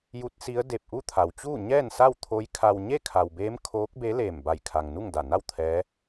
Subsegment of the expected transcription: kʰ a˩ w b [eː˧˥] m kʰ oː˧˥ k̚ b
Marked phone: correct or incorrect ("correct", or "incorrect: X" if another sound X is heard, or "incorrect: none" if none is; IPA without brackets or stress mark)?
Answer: correct